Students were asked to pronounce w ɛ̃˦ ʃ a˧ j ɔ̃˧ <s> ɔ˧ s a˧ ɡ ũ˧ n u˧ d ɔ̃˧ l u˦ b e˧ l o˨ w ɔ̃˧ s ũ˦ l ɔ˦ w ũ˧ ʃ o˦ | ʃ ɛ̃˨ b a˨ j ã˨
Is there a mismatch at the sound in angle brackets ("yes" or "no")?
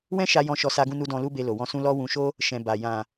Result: yes